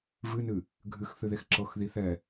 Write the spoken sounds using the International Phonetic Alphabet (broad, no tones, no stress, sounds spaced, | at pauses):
v ɨ n ɨ | ɡʱ ɨ x θ ɨ ð e x ǁ ɤ x ð i θ ɛ